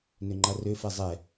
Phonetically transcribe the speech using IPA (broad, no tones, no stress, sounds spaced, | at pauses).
n ø ŋ͡ǃ a r ø f ɛ zˤ ɛ